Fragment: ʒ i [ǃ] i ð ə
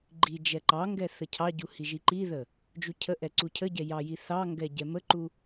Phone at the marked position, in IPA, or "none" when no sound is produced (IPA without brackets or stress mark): ǃ